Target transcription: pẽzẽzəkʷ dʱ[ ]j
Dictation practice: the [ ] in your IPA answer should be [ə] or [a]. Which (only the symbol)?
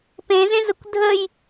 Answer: ə